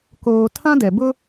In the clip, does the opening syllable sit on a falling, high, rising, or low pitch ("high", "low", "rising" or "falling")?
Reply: low